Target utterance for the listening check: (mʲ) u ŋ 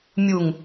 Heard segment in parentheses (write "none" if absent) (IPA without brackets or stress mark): mʲ